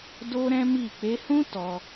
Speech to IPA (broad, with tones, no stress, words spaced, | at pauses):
do˦ɾɛ̃˦mi˦˨ k͡pe˧hũ˦ tɔ˧